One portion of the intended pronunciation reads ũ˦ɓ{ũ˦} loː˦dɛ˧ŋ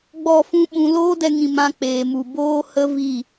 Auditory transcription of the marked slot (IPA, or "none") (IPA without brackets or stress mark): ũ˧